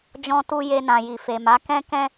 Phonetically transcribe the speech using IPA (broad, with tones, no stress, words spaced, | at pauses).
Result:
d͡ʒɔ̃˧tu˧je˧nã˨ ji˨fe˨ma˨˦ kɛ̃˦ kɛ̃˦